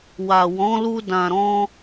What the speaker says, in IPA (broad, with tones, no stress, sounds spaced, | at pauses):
w a˨ w ɔ̃˨˦ l u˧ d ã˨ ɾ ɔ̃˧